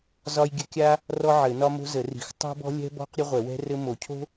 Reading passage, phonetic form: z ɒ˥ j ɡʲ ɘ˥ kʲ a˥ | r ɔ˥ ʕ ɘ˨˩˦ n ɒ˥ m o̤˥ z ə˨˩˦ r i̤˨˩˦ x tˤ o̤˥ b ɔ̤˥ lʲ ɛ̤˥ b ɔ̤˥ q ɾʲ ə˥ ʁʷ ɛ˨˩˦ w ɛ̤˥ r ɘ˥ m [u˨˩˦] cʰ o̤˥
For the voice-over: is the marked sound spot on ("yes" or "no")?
no